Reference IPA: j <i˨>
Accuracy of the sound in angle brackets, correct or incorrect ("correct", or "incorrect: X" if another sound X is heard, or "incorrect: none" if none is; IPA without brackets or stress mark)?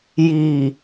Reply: correct